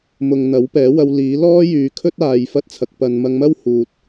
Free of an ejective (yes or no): yes